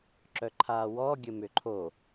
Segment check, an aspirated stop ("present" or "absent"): present